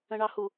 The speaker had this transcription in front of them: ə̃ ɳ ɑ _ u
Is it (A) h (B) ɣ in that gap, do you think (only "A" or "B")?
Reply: A